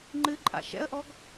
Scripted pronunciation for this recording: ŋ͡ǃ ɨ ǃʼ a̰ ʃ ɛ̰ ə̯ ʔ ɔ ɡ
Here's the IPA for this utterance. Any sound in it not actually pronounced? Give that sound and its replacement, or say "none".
none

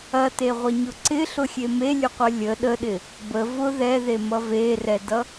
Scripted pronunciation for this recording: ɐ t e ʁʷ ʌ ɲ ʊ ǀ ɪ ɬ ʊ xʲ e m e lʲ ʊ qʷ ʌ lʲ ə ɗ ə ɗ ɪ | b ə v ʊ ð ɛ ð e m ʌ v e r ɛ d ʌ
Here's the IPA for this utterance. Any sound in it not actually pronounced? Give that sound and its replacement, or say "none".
none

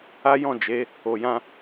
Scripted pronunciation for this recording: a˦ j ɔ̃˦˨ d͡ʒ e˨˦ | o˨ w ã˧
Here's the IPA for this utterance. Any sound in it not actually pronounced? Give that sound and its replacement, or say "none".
w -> j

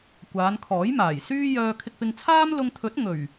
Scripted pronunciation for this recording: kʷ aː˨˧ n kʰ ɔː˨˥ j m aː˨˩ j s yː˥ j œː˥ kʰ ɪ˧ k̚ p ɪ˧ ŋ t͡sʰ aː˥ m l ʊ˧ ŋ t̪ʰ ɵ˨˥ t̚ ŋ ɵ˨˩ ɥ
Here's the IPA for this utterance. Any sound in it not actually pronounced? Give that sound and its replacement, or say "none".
none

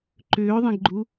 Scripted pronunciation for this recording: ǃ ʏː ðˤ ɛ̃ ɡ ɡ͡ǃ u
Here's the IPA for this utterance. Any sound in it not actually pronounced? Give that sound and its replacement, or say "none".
none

